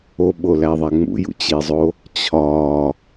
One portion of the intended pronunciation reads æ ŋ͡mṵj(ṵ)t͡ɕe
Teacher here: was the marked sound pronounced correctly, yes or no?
yes